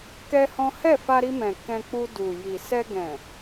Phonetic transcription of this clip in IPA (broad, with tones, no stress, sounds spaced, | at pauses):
k ɛ˦ h ɔ̃˦ h ɛ˦˨ f a˧ ɾ i˧ m ɛ̃˨ k ɛ̃˧ k͡p u˧ d u˨ j i˨ s ɛ˧ ɡ ɛ̃˨